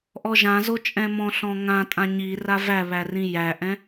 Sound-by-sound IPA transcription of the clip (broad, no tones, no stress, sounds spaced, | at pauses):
ʔ ɔ ʒ ã z o t͡ʃʼ ɛ̃ m ɔ̃ ɬ ɔ̃ ŋ ã tʼ ã ɲ i r a v æ β æ r ĩ j æ ʔ ɛ̃